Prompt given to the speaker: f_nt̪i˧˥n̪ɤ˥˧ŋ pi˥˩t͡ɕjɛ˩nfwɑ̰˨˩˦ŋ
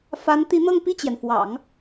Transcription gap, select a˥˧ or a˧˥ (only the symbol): a˧˥